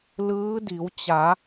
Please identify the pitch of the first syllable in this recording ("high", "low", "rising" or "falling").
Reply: rising